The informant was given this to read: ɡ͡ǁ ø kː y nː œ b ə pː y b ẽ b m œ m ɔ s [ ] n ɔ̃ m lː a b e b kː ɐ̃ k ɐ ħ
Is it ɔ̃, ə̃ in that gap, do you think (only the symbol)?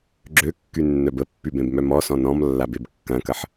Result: ɔ̃